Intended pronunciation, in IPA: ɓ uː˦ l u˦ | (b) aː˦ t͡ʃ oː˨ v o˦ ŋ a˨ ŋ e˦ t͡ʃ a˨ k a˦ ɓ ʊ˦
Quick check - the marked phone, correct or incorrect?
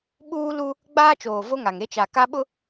incorrect